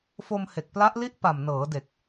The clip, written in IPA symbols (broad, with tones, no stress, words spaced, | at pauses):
fo˧mhe˨˩k̚pla˦˥ʔli˥˩ʔ pa˨˩mnɤː˩˦de˨˩k̚